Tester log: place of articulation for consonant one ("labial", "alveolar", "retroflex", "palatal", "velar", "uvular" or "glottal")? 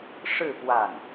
retroflex